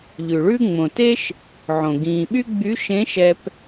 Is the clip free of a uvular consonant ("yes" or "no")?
yes